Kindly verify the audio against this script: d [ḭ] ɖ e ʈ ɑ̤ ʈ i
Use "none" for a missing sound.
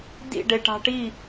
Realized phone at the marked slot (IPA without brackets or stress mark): ḭ